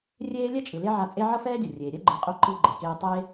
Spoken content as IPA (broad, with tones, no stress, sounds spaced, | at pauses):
rʲ eː˥ lʲ ɛ˥ t͡ʃʼ ɯ˩ l e˥ ʕ a˧ t͡sʼ e˥ ʕ ʌ˥ f ɛː˥ dʲ ʌ˩ rʲ eː˩ ɾʲ ɛ˥ ɡ͡ǃ ɯ˩ qʼ o˧ ǃ i˧ ɡ͡ǃ e˩ k eː˧ tˤ e˥